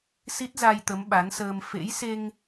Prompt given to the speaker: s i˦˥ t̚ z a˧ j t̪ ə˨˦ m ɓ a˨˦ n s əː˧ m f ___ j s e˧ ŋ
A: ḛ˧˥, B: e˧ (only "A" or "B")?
A